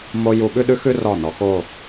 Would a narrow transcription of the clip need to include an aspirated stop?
no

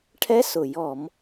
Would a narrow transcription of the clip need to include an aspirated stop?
yes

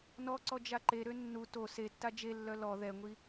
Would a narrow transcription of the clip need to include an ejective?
no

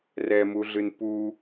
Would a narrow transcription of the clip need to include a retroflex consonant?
no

